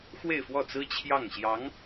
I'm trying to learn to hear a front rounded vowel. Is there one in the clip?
no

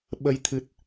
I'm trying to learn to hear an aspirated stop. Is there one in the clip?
yes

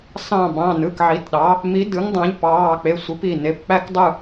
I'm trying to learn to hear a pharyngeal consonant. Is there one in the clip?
yes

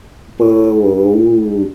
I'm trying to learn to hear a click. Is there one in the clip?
no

